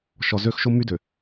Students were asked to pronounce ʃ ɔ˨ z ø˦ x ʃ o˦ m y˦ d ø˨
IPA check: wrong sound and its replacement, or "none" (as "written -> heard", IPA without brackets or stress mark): none